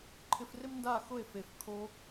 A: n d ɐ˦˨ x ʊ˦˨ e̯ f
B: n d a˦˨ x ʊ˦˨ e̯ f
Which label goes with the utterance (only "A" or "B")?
B